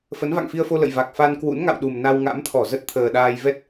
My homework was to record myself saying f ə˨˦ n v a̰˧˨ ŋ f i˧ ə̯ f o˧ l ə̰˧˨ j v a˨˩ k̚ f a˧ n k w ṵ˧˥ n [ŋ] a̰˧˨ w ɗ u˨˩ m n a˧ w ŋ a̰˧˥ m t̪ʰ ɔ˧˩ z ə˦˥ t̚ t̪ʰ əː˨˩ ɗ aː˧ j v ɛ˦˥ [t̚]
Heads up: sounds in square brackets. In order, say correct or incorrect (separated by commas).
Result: correct, correct